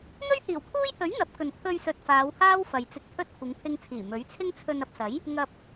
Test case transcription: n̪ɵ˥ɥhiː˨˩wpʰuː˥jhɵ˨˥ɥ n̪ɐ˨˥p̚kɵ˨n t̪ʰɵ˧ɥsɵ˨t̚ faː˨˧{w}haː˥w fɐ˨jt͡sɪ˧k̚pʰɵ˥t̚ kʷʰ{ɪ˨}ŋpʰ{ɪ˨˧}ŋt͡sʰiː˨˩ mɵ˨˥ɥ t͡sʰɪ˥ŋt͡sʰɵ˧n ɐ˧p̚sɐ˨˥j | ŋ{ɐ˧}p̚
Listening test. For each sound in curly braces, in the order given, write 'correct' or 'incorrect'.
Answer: correct, incorrect: ɪ˨˧, incorrect: ɪ˧, correct

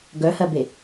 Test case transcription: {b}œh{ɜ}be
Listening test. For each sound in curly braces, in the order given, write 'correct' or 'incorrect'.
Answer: incorrect: ɡ, correct

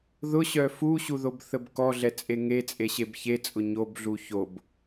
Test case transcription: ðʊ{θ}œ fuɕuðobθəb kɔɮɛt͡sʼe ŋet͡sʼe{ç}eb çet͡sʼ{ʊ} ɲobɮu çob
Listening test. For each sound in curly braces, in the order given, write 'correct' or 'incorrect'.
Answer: incorrect: ɕ, incorrect: ɕ, correct

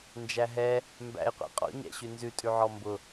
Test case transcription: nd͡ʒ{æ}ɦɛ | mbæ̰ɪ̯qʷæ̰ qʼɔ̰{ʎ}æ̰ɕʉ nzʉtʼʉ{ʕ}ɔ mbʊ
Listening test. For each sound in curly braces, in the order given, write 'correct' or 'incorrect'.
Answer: correct, incorrect: ɲ, correct

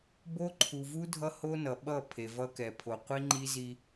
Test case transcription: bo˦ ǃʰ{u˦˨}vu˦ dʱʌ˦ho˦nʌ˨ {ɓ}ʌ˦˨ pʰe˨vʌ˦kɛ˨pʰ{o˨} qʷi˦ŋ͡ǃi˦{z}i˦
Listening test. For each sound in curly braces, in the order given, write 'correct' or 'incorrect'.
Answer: incorrect: u˨, correct, correct, correct

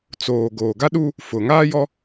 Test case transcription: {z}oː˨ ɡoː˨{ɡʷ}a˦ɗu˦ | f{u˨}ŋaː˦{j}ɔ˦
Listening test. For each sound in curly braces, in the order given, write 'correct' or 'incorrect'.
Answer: incorrect: t͡s, incorrect: ɡ, incorrect: ʊ˨, correct

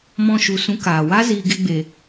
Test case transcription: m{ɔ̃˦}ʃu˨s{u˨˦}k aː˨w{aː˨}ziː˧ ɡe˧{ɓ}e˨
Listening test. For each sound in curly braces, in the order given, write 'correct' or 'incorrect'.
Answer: incorrect: ɔ̃˧, incorrect: ũ˨˦, incorrect: aː˦, incorrect: ɡ͡b

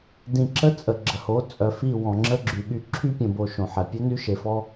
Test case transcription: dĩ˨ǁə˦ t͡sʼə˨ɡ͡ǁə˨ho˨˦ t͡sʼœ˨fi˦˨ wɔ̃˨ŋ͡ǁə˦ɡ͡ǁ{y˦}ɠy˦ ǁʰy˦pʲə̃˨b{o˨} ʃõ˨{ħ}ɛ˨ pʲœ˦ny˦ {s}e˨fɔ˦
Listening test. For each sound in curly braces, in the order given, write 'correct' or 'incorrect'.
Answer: incorrect: y˨, correct, correct, incorrect: ʃ

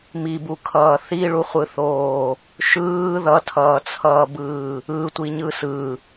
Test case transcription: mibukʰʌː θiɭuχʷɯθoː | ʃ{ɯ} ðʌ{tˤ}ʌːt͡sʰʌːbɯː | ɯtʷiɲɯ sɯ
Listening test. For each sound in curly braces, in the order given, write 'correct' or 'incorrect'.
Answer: incorrect: ɯː, incorrect: tʰ

